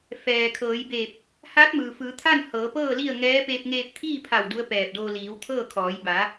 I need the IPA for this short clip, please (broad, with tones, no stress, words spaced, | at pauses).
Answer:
fɛː˩kʰɤː˩˧jbeː˧˩p̚ | haː˧˥t̚mɯː˩fɯː˩˧t̪ʰa˥˨n hɤː˩˧pɤː˥˨li˥˨ə̯ŋɛː˧˥ peː˧p̚ŋeː˧p̚t̪ʰiː˥˨pʰa˧˩w du˧˥ə̯pɛː˧˩p̚doː˧ liː˩˧wt̪ʰɤː˥˨kʰɔː˩˧j ba˩˧